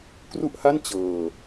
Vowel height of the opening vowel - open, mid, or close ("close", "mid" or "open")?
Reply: close